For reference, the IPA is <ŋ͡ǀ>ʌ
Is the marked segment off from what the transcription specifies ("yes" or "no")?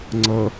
no